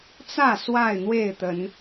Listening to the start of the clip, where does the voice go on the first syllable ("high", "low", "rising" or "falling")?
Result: falling